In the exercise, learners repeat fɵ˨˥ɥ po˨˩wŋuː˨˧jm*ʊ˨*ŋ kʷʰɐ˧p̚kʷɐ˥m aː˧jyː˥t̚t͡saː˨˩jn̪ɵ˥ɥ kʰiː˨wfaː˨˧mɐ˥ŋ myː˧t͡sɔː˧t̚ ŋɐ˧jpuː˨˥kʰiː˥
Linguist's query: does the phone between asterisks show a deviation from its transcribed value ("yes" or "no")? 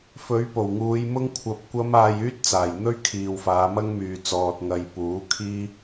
yes